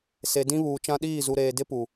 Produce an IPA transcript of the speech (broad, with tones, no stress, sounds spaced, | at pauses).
s e˨ d ĩ˦ β uː˨ t͡ʃ ã˦ ɗ iː˦˨ z u˨ ɾ eː˨ d ɪ˦ p u˨